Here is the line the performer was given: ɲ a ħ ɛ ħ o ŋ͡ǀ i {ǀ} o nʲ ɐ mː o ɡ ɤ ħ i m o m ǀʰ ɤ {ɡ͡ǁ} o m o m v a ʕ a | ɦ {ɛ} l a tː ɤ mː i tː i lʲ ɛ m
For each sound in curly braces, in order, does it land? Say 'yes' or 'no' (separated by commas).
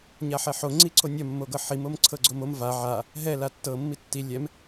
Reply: yes, no, yes